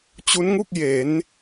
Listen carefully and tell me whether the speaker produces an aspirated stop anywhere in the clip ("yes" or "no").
no